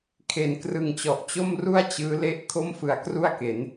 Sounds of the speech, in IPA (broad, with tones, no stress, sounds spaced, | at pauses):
kʰ e˩˦ n k r ɯ˨˩ ŋ t͡ɕ ɔ˨˩ ʔ t͡ɕ o˥˩ m r u˥˩ a̯ t͡ɕ ɯː˦˥ l e˥˩ ʔ kʰ o˥˩ m f ɯ˨˩ a̯ k r u˥˩ a̯ k e˩˦ n